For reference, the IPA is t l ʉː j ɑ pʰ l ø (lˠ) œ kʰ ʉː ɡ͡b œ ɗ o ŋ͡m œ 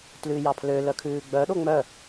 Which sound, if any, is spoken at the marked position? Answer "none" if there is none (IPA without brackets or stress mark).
l